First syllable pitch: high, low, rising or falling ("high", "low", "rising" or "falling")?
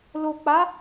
low